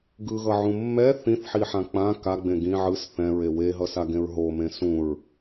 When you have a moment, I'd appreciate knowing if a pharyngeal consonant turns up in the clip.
yes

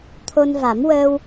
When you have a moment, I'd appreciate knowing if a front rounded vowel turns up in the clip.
no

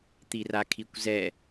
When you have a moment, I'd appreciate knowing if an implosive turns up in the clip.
no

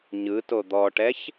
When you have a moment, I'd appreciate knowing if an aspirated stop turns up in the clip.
no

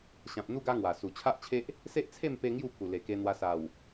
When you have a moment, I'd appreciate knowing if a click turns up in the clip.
no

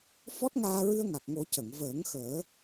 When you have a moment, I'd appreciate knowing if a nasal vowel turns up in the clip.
no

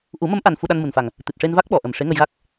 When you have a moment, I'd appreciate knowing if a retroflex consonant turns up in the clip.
yes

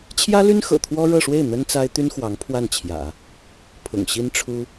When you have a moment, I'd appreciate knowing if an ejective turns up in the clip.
no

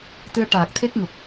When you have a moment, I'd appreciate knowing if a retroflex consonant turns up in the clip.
yes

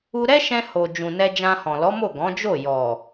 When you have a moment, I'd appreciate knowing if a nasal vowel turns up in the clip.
yes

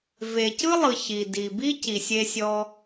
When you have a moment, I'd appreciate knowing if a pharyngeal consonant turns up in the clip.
no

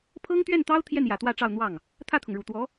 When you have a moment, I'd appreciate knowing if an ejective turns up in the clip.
no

